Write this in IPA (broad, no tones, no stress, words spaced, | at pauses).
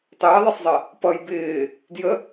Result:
tˤɪːðˤisˤzˤɜ | pʌj bɪː | djə